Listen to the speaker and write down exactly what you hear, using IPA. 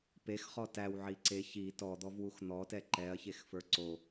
p e x χ ɔ t æ w ʕ i ǀ e ç i t ɔ d̪ ɔ v w u x n̪ ɔ t ɛ ǃ ɛ ɐ̯ ç e x f ə˞ ǀ o

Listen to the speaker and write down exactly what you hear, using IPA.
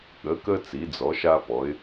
ɠ ə˩˧ k ə˧ t͡s i˩˧ d͡z ɔ˩˧ ʃ a˧ p ɔ˩˧ ɪ̯

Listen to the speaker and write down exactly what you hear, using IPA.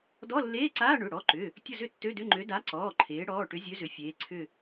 d ɔ˧˥˧ lː eː˧˥˧ ǀ aː˧˥˧ ɳ ʏ˩˧˩ ɽ ɔ˩˧˩ ǃ ʏ˩˧˩ | tʲ ʊ˦˨ z ʏ˦˨ tː ø˧˥˧ d ʏ˧˥˧ ŋ͡ǃ ø˨˥ d a˨˥ ǀ ɔː˩˧˩ ǃʰ eː˩˧ ɽ ɔː˩˧˩ ʈ ʏ˨˥ zʲ ø˨˥ z ʏ˩˧ fʲ eː˩˧ ǀʰ ʏ˦˨

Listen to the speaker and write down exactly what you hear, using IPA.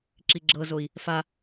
ǁ i ɡ͡ǁ ɤ z o i̯ | f a

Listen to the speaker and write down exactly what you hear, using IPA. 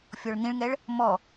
fʲ ɔ ɭ n̪ ĩ ɭ ŋ ɛ ɭ | m ɔ

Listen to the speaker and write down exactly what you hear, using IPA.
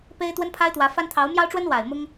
p e˥ ɪ̯ t̪ w ə˥ n pʰ a˥ ɪ̯ t̪ w ä˧˥ f a˥ n t̪ʰ ɑ˧˥ ʊ̯ m j ɑ˥ ʊ̯ ʈ͡ʂ w ə˥ n w a˨˩ ɪ̯ m ʊ˥ ŋ

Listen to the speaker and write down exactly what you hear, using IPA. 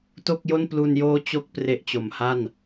t o˥˩ k̚ j o˥˩ n p l u˧ n j oː˦˥ t͡ɕ o˥˩ k̚ p r e˦˥ ʔ t͡ɕ o˨˩ m h a˥˩ n

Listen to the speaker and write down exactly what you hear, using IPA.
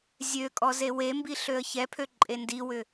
zʲ ø kʼ ɔ z e w e m b i ɬ ø ə̯ ç ɛ pʰ ø ǃʼ e n d i w ʏ

